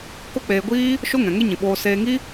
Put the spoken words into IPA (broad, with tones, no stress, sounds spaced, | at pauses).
k o˦ k͡p eː˧ ɡʷ iː˦ | ʃ o˦ ŋ ɛ̃˨ ŋ e˦ ɲ ĩ˨ ɓ oː˧ s eː˧ ŋ i˦